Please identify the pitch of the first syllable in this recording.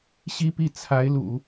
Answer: high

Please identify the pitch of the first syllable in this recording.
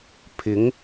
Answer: rising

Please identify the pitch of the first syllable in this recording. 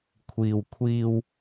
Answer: low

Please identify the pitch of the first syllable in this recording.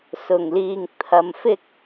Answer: low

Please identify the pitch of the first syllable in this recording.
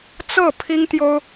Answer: falling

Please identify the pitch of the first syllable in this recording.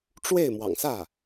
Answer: falling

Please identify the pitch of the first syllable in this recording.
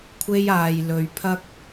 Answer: high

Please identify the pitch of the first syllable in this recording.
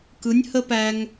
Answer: rising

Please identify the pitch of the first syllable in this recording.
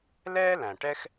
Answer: high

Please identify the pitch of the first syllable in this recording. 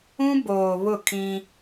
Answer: high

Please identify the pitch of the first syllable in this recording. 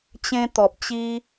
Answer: high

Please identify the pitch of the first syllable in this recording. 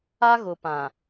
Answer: high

